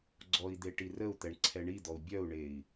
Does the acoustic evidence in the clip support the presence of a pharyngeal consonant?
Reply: no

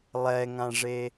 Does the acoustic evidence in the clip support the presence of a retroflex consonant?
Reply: yes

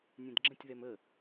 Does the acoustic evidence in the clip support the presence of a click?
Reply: yes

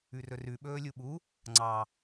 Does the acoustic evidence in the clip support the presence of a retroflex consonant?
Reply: no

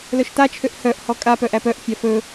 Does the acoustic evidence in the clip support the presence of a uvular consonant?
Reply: no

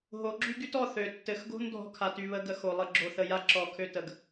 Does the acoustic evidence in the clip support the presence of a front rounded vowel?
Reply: yes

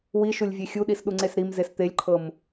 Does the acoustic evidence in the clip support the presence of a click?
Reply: yes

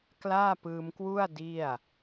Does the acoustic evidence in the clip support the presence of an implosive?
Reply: no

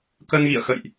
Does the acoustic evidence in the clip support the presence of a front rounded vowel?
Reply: no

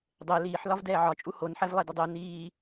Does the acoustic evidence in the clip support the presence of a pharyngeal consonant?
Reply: yes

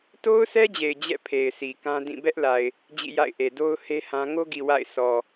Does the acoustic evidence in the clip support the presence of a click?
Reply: no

